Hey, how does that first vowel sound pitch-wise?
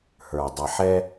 low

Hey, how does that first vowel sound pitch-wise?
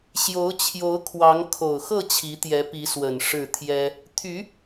rising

